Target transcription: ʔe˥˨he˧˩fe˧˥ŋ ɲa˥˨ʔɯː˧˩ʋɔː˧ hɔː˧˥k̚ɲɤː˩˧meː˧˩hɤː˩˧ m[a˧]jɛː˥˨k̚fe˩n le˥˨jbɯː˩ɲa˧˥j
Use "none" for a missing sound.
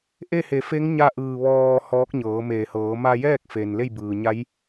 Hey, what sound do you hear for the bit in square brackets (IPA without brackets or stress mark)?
a˧